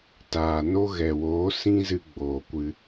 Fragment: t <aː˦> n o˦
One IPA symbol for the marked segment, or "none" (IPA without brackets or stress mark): aː˨